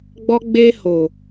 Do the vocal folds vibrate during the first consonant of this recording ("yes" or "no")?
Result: yes